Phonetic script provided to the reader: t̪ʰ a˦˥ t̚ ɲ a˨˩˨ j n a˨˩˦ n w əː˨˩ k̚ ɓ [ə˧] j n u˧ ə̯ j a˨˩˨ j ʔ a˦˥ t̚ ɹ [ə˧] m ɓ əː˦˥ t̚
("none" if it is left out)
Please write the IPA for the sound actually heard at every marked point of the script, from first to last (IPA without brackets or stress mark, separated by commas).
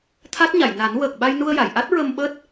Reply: a˧, ə˧